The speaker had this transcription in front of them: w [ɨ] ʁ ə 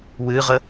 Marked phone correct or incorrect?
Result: correct